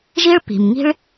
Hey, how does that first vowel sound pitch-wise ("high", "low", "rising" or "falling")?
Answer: high